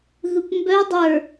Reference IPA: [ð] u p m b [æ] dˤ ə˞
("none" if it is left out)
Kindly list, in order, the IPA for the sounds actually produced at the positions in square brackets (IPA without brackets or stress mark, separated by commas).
ð, œ